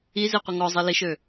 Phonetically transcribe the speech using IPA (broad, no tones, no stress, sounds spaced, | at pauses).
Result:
i z i qʷ ə ŋ ɔ zˤ i l i ʃ ø